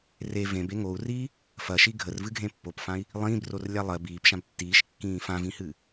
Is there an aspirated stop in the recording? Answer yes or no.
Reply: no